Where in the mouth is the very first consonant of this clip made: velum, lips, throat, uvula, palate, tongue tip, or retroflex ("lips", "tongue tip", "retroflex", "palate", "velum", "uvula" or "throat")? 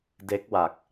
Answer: tongue tip